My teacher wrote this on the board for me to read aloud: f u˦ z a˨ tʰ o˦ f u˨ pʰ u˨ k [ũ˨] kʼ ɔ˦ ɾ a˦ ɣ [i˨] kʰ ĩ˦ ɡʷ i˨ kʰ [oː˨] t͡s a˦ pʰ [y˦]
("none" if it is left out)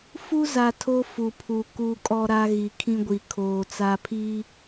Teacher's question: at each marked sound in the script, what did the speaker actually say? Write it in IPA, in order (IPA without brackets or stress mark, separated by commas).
u˨, i˨, oː˨, i˦